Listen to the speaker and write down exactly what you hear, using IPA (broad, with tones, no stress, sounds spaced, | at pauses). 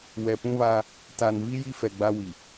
w ɛ˨ p ũ˦ β aː˦ | t aː˨ n v i˦ j i˦ f ɛ˨ ɡ͡b a˦ w i˨